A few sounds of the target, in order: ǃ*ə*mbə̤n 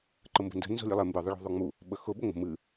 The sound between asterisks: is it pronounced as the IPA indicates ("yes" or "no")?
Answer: yes